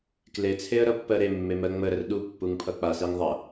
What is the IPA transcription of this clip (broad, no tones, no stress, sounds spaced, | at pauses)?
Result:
k l e t͡sʰ e ə̯ ɾ ʌ pː ɜ ɾ e mː e m ɜ ŋ͡m ə ɾ ə r ɗ u pː u ŋ pʰ ʌ k͡p a s e ŋ ðˤ ʌ